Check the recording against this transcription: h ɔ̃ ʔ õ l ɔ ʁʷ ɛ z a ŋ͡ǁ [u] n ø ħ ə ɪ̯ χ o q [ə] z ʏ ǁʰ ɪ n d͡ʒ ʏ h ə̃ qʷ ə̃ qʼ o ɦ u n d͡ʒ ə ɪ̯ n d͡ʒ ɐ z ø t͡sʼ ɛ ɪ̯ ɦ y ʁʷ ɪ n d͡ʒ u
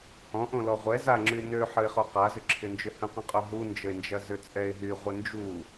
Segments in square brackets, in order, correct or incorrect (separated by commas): incorrect, incorrect